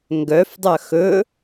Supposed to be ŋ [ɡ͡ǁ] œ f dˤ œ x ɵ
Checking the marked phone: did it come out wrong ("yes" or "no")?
yes